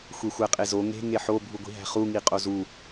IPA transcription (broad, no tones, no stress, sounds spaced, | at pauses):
xʷ e xʷ æ qʼ e z o ŋ e̤ ŋ e ħ o bʱ u ɡʷ i̤ ɦ æ̤ χ u ŋ i qʼ o z u